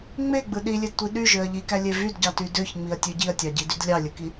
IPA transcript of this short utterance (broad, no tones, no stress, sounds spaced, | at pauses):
ŋ͡m e ɡ͡b ɯ ɗ i lʲ e d tʷ i ɗ y ʒ ø ɐ̯ ʎ i k æ lʲ e v y d ɟ ɑ t y d ø ç ŋ͡m i ɐ̯ tʲ ø ɟ i ɐ̯ tʲ ɑ ɟ i d y d lʲ ɑ lʲ ɯ k i